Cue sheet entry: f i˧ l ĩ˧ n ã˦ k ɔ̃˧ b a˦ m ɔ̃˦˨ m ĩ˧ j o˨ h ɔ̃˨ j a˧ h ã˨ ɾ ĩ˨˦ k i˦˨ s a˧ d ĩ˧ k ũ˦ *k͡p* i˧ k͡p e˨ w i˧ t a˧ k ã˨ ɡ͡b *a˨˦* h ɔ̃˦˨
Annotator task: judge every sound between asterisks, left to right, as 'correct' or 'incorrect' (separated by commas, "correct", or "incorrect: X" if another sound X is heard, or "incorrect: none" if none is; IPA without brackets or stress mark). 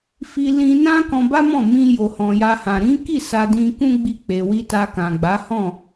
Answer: incorrect: ɡ͡b, correct